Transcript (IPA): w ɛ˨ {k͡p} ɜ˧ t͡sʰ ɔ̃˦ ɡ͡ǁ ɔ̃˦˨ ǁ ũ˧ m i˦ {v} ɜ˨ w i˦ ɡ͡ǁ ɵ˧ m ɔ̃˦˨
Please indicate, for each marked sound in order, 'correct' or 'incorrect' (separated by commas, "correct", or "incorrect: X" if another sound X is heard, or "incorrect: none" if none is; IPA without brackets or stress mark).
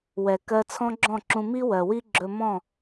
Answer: incorrect: k, incorrect: w